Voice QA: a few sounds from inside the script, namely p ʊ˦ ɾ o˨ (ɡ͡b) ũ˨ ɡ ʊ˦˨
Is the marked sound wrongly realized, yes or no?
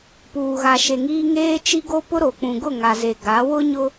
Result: yes